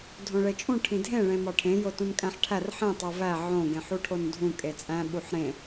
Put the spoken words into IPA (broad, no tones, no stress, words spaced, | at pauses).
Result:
dʱõɭet͡ʃʼũ ʈʰĩdʱẽ ɭẽmɒʈʰẽ jotũnkʼæ̃ħʈʰær ħẽ tˤovæ ʕõ ɡẽħuʈʰondʱũ kʼet͡sʼæ̃ ɓuħɾẽ